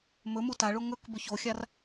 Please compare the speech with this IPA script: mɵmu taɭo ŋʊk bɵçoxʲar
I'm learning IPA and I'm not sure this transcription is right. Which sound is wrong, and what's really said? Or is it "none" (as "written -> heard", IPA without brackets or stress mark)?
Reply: ʊ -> ɵ